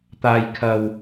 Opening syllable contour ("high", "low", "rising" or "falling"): low